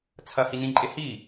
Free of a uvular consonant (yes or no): yes